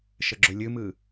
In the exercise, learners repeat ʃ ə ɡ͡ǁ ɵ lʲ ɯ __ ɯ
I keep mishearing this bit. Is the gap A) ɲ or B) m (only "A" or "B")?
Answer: B